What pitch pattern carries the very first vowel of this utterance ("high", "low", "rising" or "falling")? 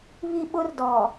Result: high